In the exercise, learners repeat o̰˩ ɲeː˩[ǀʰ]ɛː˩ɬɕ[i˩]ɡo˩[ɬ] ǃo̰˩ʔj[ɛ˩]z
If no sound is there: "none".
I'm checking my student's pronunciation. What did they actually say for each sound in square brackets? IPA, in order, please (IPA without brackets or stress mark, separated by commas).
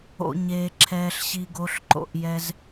ǁʰ, i˩, ɬ, ɛ˩